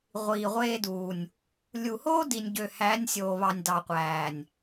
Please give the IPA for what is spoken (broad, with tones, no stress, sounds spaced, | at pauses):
ʁʷ iː˨ ʁʷ eː˧ d uː˨ nʲ | lʲ u˨ h oː˦ d i˨ nʲ ɟ ø˨ h æː˨˦ nʲ sʲ oː˨ β ɑ˨ nʲ d ɑ˨ qʷ æː˨ nʲ